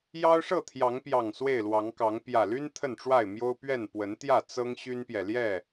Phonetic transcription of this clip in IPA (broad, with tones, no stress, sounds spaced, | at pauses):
j ɑ˦ ʊ̯ ʂ ɤ˥˨ t̪ʰ j ɑ˨˦ ŋ p j ɑ˨˩ ŋ s w e˥˨ ɪ̯ l w ɑ˨˦ ŋ k ɑ˨˦ ŋ p j ä˨˩ l y˦ n t̪ʰ ə˥˨ n ʈ͡ʂ w a˥˨ ɪ̯ m j o˦ ʊ̯ p ɥ ɛ˥˨ n p w ə˨˦ n t̪ j ä˥˨ t͡s ɤ˦ ŋ ɕ y˦ n p j ɛ˨ l j ɛ˥˨